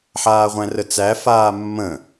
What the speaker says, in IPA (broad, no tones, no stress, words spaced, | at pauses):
ħaːʁʷæ̃rət͡sæ faːmːə̃